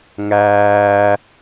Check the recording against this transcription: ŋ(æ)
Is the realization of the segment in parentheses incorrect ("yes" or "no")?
yes